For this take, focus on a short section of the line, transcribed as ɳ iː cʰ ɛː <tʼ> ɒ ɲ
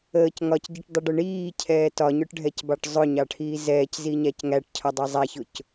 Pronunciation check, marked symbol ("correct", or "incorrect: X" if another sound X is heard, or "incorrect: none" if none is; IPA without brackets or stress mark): incorrect: t